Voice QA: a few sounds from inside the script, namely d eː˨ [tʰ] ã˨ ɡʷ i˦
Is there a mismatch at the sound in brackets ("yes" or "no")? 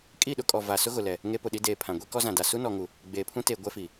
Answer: yes